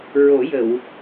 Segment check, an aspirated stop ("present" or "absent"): absent